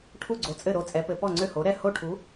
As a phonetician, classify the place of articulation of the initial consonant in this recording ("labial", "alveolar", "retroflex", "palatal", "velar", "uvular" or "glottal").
retroflex